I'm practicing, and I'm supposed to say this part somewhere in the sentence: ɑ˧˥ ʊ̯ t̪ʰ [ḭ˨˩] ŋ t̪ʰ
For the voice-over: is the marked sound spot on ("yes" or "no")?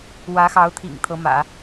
yes